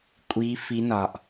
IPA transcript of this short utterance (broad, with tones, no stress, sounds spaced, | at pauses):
kʷʼ iː˦˥ f i˦˥ n ɒ˧ ʔ